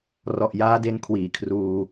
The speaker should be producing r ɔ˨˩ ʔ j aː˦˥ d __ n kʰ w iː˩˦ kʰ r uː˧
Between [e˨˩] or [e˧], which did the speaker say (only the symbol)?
e˧